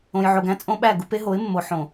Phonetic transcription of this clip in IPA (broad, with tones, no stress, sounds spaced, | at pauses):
õ˨ j ʕ o˨ ɡ æ̃˦ t͡sʼ õ˦ ɓ æ˦˨ ɡ u˦ p e˦ ɦ o˨˦ ɪ̯ mː o˨ ħ õ˨